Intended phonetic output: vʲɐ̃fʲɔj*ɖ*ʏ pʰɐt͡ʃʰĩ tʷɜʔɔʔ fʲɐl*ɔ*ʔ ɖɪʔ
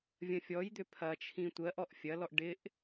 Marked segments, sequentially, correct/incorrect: incorrect, correct

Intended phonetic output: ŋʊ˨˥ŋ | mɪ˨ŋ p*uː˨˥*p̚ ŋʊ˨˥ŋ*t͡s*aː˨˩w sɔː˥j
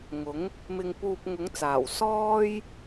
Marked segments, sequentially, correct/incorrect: incorrect, correct

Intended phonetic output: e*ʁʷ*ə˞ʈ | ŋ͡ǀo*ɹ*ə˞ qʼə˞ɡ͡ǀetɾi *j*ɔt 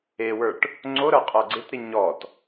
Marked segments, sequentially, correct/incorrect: incorrect, incorrect, incorrect

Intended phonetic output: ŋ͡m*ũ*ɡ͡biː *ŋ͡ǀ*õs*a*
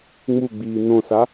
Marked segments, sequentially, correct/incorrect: incorrect, incorrect, correct

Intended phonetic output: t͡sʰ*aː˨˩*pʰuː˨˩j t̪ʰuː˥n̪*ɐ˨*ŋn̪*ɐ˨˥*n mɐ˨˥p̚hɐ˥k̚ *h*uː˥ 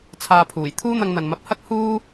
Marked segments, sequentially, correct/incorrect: incorrect, incorrect, incorrect, correct

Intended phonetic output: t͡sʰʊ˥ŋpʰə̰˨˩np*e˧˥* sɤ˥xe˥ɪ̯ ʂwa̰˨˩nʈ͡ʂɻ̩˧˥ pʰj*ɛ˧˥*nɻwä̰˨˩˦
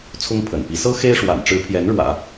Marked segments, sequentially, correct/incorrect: incorrect, correct

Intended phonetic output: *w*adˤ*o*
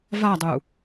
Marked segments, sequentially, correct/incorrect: incorrect, incorrect

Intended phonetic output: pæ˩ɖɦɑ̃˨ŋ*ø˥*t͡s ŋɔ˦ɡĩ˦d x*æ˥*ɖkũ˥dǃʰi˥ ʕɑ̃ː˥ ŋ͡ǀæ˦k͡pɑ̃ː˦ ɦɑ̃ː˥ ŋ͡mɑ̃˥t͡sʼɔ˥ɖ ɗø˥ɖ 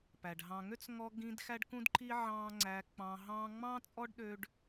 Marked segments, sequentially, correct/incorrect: correct, correct

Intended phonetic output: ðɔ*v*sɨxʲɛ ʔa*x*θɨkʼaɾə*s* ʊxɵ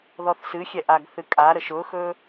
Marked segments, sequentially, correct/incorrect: incorrect, incorrect, incorrect

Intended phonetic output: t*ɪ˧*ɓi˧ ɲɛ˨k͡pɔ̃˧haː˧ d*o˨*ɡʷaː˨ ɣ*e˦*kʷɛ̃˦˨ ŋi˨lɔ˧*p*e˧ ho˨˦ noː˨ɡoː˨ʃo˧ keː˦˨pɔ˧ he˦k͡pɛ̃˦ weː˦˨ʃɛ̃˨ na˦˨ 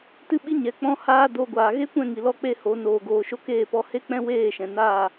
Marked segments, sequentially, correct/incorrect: incorrect, incorrect, correct, incorrect

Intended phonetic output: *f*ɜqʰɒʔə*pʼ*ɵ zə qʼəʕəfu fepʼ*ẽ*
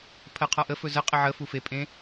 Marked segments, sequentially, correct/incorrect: incorrect, incorrect, correct

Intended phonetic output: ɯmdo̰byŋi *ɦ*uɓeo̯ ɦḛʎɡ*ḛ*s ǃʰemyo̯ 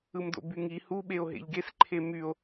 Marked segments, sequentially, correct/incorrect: incorrect, incorrect

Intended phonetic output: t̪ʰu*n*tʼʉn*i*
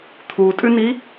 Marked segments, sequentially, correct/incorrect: incorrect, correct

